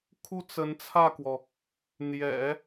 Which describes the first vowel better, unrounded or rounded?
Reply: rounded